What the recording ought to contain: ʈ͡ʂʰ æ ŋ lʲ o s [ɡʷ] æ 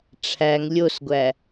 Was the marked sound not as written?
no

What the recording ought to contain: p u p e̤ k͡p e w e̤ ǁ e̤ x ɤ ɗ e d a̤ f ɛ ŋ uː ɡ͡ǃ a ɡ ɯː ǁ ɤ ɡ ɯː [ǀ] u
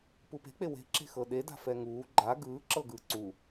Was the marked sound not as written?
no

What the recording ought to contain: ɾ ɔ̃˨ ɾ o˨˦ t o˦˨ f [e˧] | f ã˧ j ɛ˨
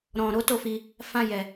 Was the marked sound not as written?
yes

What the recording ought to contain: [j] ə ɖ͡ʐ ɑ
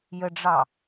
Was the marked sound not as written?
no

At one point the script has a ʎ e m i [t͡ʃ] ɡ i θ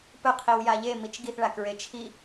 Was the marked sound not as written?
no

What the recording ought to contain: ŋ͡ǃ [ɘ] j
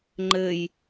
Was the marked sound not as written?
no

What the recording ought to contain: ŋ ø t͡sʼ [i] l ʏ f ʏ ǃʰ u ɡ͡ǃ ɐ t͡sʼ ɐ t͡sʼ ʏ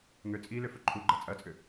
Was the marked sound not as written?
no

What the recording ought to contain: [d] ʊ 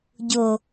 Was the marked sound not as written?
yes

